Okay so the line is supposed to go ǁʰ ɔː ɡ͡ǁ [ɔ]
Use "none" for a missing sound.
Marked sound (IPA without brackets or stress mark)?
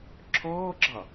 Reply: ɑ